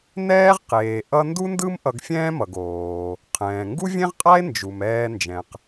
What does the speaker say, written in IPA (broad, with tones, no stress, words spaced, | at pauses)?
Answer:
nɛː˥ʁqeː˩ ʔʌ˥ ndu˥ndɯ˥m ʔʌ˧ɡfʲɛ̃ː˥mʌ˩ɡ oː˩ | qʰɛ̃ː˩ŋɡu˥vʲẽ˥ʁqʼa˥e̯ nd͡ʒu˩mɛː˧nd͡ʒɛ̃˩q